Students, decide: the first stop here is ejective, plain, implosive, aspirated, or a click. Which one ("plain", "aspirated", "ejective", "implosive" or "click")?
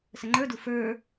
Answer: click